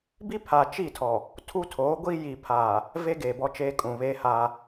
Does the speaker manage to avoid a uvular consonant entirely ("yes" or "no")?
yes